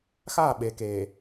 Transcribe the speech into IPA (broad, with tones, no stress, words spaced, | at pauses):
xa˦˨ɓe˨ke˨